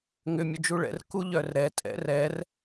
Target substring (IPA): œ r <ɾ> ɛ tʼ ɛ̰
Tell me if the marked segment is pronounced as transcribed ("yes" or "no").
yes